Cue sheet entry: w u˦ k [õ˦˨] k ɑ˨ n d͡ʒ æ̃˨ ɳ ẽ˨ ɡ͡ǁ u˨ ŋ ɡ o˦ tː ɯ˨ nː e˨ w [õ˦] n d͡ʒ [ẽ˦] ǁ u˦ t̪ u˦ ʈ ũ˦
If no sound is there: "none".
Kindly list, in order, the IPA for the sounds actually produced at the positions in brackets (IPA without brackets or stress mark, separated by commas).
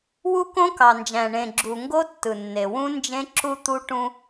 õ˦, ũ˦, ẽ˦